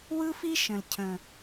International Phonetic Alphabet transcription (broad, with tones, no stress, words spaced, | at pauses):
wɯ˦fi˦ ʃə̃˨l cʰə̃˨